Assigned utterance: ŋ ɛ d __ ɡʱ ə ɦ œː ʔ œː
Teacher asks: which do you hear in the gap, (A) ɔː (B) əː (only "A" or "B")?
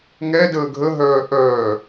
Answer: B